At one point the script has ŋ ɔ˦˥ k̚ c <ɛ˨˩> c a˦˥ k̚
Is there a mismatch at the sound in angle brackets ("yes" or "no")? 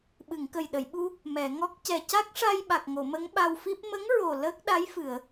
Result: no